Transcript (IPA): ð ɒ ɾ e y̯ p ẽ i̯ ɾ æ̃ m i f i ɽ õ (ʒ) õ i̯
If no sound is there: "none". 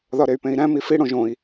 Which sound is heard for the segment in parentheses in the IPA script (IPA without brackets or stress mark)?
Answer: ʒ